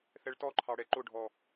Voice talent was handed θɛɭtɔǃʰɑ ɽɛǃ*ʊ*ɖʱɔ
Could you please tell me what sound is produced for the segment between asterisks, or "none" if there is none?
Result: ʊ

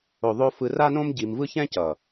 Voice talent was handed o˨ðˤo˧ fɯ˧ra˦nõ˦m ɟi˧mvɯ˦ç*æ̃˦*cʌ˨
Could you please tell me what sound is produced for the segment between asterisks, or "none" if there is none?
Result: ɛ̃˦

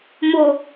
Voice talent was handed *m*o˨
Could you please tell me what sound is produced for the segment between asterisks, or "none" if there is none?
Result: m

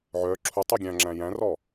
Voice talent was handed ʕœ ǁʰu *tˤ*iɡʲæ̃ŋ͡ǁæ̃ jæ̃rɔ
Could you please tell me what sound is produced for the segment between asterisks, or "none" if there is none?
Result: tˤ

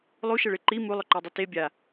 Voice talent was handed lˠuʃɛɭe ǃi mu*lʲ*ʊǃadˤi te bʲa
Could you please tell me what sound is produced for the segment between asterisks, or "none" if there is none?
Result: lˠ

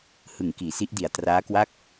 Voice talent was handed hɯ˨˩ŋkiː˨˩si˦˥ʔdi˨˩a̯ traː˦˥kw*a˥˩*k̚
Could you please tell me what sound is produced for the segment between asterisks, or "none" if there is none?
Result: a˥˩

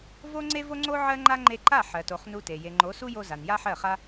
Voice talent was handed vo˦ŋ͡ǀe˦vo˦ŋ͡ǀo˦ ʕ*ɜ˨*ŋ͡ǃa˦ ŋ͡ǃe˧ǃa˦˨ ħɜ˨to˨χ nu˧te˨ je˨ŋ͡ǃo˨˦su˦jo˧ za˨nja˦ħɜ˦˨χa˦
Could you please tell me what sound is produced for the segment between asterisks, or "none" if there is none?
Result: ɜ˦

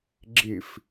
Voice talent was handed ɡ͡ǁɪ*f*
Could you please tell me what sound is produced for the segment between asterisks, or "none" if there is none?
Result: f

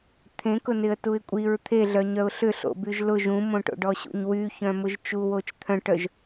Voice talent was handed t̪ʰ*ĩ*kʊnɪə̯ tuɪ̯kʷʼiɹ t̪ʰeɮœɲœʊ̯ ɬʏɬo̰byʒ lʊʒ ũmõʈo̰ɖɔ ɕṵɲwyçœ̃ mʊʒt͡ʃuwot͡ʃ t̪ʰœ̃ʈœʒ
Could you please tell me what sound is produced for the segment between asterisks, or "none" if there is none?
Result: ẽ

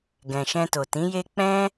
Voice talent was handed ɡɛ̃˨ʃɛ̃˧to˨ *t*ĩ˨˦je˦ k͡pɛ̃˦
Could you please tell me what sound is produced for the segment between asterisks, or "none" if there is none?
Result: t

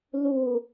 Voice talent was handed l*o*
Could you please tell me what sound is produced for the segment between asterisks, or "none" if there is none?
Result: u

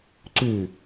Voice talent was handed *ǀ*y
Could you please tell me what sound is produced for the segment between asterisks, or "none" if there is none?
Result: ǀ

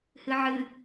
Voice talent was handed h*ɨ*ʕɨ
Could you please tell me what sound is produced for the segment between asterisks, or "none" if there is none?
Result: ɨ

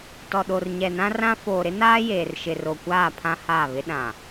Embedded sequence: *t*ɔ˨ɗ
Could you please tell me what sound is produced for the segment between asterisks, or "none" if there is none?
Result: t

